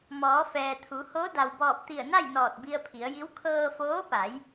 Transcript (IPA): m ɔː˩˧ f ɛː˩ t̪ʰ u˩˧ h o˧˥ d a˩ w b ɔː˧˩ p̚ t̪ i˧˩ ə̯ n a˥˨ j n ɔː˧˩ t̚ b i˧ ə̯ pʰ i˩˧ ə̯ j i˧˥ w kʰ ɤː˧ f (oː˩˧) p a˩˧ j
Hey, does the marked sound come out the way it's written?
no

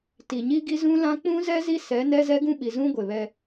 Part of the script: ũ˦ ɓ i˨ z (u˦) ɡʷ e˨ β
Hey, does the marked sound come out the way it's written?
no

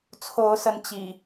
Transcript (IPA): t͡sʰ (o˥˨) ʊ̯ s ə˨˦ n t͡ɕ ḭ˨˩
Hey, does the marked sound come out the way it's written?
no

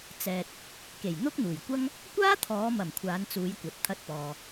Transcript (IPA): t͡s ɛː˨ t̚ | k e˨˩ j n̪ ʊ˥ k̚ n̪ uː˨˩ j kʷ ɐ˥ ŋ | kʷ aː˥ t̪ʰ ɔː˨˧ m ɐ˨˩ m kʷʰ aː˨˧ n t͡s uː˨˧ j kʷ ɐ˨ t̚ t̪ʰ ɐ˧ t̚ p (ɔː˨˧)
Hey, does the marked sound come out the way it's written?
no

